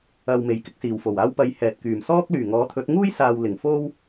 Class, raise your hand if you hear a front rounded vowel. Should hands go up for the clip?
yes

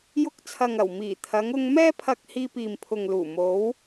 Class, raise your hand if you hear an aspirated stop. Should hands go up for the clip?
yes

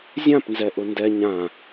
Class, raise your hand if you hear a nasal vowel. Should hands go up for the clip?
yes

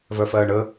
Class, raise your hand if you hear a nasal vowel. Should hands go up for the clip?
no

